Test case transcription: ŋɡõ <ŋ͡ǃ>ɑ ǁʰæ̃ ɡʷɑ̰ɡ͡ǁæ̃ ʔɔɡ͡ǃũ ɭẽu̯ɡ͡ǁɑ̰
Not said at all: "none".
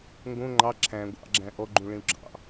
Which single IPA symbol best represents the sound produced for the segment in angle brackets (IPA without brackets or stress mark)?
ŋ͡ǃ